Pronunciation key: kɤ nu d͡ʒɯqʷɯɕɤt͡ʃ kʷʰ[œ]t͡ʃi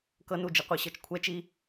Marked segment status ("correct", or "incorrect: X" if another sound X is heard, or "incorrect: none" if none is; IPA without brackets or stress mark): incorrect: ɛ